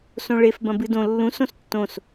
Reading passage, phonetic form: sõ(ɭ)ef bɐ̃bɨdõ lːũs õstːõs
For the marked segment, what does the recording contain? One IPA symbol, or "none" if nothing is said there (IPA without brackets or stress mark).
ɭ